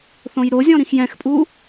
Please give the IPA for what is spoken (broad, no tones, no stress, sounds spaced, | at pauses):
θ õ j ɾ o zʲ ɔ̃ ɾ ĩ x j ɛ̃ x pʼ u